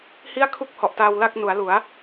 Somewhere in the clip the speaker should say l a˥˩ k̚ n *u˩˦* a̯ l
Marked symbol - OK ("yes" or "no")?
yes